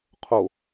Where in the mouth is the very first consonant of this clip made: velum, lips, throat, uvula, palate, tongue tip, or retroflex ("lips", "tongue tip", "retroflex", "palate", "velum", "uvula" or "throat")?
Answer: uvula